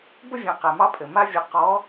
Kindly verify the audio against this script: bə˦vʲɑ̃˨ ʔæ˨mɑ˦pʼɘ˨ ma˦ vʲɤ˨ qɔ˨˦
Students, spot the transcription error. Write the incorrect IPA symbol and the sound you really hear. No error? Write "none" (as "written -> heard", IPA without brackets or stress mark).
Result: ʔ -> q